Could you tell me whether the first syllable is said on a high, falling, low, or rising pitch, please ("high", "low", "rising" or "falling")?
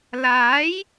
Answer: rising